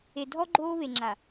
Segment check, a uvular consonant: absent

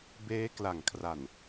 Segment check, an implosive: absent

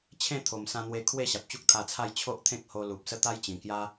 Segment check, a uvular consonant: absent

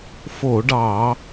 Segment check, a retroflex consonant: present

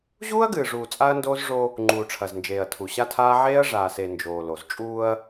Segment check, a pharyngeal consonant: present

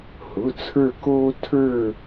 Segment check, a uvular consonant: absent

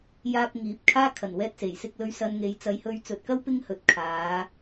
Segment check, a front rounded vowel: absent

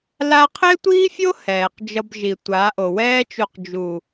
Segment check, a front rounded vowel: absent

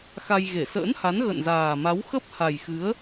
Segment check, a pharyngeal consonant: absent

